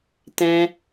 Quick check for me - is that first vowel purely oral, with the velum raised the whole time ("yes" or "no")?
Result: no